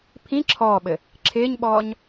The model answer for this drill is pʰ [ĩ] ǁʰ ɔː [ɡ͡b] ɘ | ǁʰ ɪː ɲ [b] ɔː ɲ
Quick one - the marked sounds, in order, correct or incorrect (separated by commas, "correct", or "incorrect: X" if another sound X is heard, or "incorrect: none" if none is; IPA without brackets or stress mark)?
correct, incorrect: ɓ, incorrect: ɓ